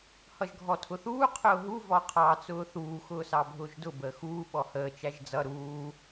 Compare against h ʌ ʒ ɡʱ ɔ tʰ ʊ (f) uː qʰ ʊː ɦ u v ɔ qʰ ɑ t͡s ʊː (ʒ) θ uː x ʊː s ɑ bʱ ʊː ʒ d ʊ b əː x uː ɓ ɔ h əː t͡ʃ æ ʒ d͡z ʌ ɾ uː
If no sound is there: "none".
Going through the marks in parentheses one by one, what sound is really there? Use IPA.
θ, none

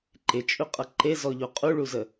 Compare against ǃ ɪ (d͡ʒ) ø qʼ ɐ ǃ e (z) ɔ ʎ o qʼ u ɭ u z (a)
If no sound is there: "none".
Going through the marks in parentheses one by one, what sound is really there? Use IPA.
t͡ʃʼ, z, ə

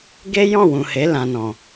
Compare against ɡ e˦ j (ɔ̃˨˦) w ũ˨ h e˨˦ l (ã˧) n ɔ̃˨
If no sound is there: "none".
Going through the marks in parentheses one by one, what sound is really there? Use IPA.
ɔ̃˦˨, ã˧

